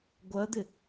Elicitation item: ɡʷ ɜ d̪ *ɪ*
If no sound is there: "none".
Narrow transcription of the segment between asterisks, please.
ɪ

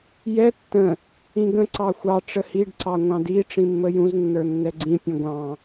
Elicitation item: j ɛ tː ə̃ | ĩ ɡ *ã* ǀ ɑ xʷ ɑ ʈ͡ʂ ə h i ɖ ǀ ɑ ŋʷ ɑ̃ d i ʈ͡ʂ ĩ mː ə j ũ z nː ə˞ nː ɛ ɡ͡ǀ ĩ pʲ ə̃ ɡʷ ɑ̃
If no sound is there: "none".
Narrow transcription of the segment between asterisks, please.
ə̃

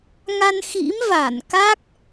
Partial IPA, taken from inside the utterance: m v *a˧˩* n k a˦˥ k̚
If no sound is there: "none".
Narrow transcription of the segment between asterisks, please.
a˧˩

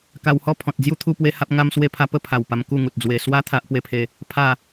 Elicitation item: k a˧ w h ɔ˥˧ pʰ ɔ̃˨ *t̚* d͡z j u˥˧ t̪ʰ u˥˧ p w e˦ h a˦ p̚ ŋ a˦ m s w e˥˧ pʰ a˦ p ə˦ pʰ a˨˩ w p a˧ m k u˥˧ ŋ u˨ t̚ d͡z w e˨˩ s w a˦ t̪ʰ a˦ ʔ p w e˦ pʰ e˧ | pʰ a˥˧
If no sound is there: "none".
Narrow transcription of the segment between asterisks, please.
t̚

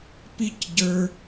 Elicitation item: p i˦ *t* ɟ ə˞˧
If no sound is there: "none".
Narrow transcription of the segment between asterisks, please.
c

